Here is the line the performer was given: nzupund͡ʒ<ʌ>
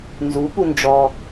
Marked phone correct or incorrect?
incorrect